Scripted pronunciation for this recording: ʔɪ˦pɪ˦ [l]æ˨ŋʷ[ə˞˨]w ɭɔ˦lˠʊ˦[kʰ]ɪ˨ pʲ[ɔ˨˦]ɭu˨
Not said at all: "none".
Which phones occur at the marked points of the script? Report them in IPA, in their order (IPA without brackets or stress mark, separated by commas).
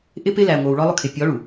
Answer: l, ə˞˨, kʰ, ɔ˨˦